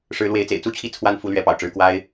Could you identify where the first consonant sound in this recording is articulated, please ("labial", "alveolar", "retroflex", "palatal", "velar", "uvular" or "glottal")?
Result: retroflex